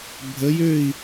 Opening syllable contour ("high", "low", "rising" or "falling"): rising